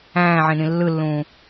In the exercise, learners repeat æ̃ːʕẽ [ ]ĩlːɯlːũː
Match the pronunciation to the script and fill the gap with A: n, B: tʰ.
A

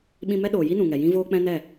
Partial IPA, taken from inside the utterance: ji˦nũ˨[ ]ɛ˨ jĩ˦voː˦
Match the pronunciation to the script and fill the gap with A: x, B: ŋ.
B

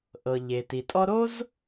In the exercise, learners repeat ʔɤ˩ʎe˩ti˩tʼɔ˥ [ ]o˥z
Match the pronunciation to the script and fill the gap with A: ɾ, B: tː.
A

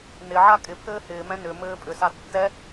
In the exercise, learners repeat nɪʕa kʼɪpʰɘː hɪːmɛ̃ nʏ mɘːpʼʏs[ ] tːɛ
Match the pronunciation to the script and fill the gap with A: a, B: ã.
A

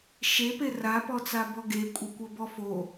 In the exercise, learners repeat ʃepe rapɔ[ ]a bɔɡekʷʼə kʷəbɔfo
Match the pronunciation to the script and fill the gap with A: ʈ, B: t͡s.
B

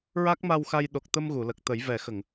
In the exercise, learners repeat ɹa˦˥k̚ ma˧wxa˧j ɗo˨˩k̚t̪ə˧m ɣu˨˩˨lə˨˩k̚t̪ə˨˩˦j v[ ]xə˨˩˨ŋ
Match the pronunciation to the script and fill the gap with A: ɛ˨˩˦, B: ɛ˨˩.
A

